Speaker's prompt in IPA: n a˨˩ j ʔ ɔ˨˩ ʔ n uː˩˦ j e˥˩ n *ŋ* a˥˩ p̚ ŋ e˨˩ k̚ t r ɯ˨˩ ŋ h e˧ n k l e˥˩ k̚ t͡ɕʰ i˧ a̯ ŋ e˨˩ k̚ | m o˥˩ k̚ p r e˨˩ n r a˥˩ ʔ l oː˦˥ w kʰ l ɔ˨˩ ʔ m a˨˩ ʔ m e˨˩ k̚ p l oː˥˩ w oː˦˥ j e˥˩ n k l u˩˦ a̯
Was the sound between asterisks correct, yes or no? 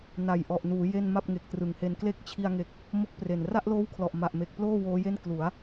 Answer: no